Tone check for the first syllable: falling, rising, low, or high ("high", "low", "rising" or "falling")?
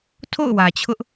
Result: falling